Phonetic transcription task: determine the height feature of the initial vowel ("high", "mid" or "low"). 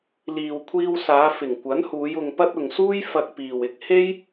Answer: high